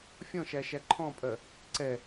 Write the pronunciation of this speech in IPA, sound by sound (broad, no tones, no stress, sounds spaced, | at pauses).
fʲ ɔ̃ ʃ æ ʃ æ ǃʰ ɔ̃ pʼ ɜ | ǀ ɛ